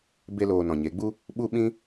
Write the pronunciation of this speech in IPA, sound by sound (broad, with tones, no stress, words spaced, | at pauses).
be˧ loː˧nɔ̃˨ɲe˨˦ɡ͡bu˦ | ɓu˦ɓĩ˦